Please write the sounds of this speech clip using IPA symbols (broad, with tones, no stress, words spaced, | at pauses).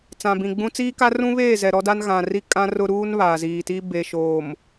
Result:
t͡sã˨bĩ˨ɡ͡bũ˦ t͡siː˦ka˦rũ˦βeː˦˨ zɛ˨ɾɔ˦da˦n ɣã˨ri˦ kʼã˦rʊ˦ ɾuː˦n βaː˨ ziː˨ti˦ be˨ʃoː˨m